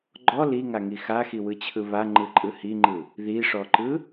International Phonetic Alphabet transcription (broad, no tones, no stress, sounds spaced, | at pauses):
ɡ͡ǃ ɔ l i ŋ a ŋ i x a x i w ɯ t͡ɕʰ ɯ β a ŋ͡ǃ ɯ ǃʼ ɯ h i ŋ͡ǃ ɯ | ð i ʂ ɔ ǃ ɯ